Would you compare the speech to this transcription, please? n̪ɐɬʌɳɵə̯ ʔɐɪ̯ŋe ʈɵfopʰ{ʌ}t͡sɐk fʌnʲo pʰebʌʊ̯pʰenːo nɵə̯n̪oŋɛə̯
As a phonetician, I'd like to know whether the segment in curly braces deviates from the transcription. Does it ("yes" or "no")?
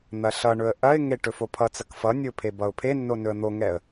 no